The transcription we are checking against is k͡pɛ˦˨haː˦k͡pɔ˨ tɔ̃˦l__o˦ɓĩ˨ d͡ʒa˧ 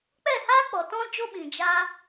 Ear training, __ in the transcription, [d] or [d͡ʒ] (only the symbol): d͡ʒ